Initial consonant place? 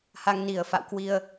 glottal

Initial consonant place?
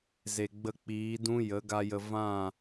alveolar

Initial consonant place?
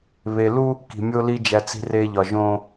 labial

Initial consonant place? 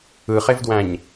uvular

